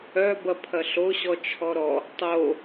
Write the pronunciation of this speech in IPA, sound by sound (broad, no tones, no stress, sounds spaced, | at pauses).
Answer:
œ b ɐ pʰ ɐ ɬ o ɕ ɔ t͡ʃʰ ɔ ɾ ɔ | tˤ o